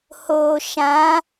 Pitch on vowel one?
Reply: low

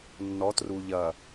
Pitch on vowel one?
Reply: rising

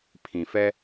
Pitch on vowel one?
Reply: low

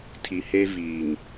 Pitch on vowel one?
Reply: low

